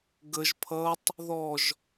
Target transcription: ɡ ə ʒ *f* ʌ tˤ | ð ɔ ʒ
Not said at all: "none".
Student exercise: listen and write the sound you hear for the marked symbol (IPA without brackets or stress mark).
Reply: pʰ